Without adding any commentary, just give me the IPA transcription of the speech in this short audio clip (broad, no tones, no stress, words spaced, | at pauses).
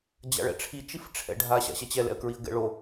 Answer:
d͡ʑa̰ɭɛ̰ʈ͡ʂʰi t͡ʃifʈ͡ʂʰɛ̰ɖʱa ɕa̰ɕɛt͡ɕɛ lɛ̰ə̯kɹiə̯ɡɛ̰ɭo